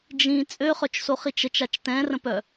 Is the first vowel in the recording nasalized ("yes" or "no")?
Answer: yes